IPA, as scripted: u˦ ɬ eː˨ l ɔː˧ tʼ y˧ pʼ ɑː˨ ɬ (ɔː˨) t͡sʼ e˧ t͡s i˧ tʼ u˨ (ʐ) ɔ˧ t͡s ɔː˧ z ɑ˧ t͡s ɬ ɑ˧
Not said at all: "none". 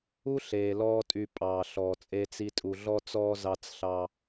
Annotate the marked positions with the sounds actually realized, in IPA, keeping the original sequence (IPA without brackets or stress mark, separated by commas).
ɔː˨, ɮ